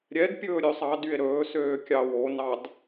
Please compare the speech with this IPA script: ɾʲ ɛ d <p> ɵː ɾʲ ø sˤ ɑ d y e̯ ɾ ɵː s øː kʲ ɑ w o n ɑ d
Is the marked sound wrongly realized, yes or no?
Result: yes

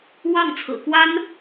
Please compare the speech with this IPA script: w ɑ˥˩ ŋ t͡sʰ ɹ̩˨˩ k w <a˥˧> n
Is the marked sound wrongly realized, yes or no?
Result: yes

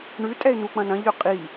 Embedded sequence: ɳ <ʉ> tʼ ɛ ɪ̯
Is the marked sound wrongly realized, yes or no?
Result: no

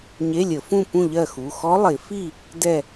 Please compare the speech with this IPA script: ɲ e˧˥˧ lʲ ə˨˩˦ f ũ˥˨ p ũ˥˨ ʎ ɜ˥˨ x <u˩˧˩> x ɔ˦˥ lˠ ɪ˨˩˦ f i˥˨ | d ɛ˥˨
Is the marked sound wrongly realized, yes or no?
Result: no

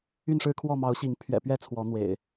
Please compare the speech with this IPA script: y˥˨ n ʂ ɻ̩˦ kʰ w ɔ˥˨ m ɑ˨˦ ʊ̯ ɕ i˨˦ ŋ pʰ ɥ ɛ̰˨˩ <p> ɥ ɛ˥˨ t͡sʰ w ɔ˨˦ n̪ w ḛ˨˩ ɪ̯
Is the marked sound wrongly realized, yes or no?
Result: no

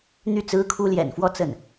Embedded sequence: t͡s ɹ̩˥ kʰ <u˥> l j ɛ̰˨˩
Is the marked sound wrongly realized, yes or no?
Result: no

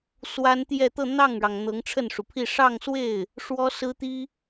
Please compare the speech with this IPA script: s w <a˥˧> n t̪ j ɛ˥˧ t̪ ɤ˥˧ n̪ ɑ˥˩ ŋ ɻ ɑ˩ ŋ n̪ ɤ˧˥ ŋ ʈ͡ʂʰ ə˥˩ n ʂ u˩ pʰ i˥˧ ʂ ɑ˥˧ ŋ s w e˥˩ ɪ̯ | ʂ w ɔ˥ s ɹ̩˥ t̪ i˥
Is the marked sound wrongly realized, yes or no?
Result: yes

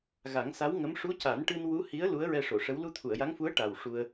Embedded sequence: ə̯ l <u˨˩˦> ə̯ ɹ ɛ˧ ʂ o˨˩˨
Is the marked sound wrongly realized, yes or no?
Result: yes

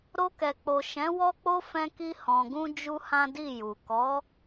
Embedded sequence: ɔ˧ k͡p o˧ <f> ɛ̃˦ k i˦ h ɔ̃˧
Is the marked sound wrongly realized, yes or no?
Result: no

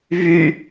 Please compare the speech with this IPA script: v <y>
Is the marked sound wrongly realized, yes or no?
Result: no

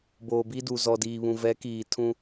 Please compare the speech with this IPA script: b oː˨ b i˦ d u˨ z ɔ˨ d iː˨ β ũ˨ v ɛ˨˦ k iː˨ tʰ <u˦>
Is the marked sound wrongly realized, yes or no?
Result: yes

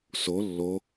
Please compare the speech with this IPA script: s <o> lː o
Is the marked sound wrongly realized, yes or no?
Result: no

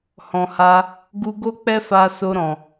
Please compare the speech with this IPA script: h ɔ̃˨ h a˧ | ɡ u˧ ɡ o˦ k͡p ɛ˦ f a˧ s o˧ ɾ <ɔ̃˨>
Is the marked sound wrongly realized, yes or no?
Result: no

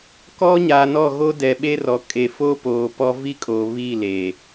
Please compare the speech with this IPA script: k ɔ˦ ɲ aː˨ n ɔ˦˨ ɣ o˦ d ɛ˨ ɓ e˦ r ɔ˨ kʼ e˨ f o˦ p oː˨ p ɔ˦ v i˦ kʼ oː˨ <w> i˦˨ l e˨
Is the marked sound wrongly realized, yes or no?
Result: yes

